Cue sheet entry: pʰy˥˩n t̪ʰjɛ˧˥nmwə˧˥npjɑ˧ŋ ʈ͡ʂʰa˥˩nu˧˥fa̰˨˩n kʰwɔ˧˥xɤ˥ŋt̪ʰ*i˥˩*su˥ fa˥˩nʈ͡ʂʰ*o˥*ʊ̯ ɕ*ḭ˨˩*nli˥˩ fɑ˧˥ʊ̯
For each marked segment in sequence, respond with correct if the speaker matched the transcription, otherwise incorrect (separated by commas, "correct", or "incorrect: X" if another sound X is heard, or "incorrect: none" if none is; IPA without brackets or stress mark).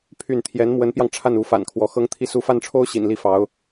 correct, correct, correct